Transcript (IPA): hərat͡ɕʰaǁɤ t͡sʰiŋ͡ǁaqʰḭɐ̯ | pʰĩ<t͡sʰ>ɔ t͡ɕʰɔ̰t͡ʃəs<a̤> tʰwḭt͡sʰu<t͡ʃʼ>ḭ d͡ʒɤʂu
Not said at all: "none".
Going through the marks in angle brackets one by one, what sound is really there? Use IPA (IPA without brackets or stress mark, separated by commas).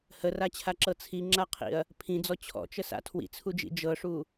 d͡z, a̰, d͡ʒ